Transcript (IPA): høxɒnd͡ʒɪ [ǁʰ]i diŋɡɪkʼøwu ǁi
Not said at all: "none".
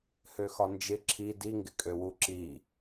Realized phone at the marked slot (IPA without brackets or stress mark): ǁʰ